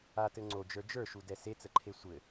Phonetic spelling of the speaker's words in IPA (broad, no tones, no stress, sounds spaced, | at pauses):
a t ɘ ŋ͡ǀ o d͡ʒ ə˞ d͡ʒ ə˞ ʃ u d ɛ s e t͡s ə ǃʰ e sʷ ɘ